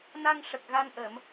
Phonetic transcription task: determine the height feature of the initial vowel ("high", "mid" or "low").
low